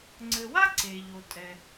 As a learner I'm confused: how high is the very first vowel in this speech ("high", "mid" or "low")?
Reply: mid